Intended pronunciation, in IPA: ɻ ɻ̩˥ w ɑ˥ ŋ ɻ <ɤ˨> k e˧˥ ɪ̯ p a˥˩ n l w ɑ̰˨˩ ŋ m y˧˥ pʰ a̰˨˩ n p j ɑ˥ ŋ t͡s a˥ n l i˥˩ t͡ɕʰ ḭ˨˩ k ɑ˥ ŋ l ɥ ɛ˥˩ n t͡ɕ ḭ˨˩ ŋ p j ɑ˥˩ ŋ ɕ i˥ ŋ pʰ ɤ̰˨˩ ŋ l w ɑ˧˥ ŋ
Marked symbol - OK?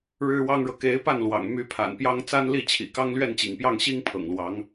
yes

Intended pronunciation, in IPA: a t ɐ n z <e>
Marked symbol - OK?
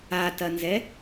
no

